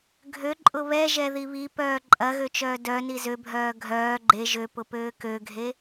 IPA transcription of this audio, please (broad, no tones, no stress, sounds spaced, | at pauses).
ɡʱ ø ǃʼ ʊ β ɛ ʒ ɛ ð i β i p œː ǃʼ ɐ ɣ ø t͡ʃ œː d œ n i z ø bʱ œː ɡʱ œː ɡ͡ǃ e ʒ ø p ʊ p øː k ø ɡʱ e